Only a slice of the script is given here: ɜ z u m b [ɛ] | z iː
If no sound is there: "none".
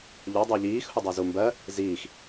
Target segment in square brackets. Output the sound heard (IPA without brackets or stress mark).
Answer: ɜ